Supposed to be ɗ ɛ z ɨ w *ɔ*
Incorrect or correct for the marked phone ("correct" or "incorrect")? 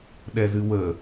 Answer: incorrect